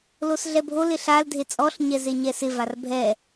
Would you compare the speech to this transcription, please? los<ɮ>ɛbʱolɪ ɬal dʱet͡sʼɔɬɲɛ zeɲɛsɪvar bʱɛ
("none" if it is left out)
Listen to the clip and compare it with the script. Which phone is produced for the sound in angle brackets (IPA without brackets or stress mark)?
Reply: ɮ